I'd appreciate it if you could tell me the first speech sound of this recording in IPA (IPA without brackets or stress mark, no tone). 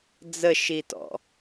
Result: d͡z